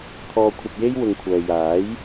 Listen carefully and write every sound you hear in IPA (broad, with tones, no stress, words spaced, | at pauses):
t̪ʰɔː˧kʷʰɐ˧p̚ je˥jwʊ˨˧ŋkʷʰœː˨ jaː˨˥j